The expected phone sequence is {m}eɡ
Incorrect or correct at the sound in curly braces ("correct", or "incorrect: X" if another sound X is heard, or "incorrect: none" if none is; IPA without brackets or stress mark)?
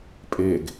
incorrect: pʼ